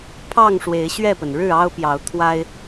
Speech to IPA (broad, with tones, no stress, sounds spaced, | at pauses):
pʰ ɑ˥˨ ŋ ʂ w e˨˦ ɪ̯ ɕ ɥ ɛ˥˨ p ə˩ n ɻ ɻ̩˥˨ ɑ˦ ʊ̯ p j ɑ˨˦ ʊ̯ t̪ʰ w a˦ ɪ̯